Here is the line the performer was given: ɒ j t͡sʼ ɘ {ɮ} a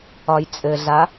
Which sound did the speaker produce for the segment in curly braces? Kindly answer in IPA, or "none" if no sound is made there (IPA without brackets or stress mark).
ɮ